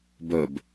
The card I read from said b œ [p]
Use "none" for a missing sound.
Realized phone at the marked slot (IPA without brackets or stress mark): b